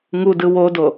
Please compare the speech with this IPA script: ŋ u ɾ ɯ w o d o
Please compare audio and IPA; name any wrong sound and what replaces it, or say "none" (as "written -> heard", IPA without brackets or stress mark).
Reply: ɾ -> d